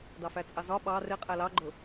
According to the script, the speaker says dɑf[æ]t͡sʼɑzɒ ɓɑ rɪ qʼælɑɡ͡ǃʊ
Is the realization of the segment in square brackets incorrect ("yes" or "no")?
no